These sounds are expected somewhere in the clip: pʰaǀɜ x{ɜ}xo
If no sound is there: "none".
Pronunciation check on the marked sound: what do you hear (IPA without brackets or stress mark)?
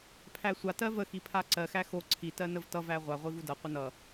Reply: æ